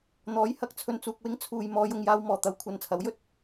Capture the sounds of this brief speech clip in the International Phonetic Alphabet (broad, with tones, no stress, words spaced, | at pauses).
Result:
n̪ɔː˨˥jhɐ˨˥k̚t͡sʰɵ˧nt͡suː˨k̚ wɪ˥ŋ t͡sʰuː˨j mɔː˨˧jʊ˨ŋjaː˧wmɔː˨˩ t̪ɐ˧wkʷʰɐ˨nt͡sʰɐ˨˥wjɵ˥t̚